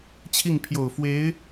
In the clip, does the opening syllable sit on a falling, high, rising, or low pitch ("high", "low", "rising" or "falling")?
falling